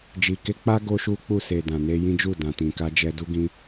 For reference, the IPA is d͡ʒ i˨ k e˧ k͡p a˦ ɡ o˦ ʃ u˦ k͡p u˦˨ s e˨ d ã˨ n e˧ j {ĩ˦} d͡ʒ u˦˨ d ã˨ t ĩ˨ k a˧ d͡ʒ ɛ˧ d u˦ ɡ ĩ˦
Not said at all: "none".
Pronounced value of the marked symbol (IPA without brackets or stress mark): ĩ˦